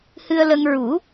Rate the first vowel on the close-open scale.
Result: close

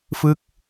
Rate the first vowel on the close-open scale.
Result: close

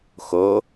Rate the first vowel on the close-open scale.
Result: mid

